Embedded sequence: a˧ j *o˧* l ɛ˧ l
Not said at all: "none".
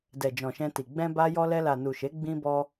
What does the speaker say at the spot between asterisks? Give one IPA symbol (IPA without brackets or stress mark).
ɔ˧